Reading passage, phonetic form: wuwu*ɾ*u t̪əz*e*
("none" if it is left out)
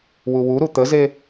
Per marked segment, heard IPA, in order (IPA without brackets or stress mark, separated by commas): ɾ, e